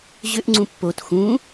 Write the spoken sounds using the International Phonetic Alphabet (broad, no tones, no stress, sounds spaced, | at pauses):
ʑ ʏ ʔ ŋ͡ǀ ũ pː o t x ũ